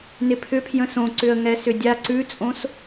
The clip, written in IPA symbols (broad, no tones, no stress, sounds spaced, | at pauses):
n ɪ pʰ ʏ pʰ j ə̃ s õ ǀ ʏ ə̯ ŋ ɛ s ʏ dʲ a ǀ ʉ t͡sʼ õ s